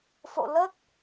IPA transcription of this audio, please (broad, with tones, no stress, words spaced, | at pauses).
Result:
fo̰˧˨ lə˦˥t̚